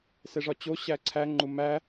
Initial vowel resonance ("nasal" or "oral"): oral